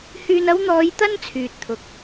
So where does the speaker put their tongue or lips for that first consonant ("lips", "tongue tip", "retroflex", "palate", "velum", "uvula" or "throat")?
throat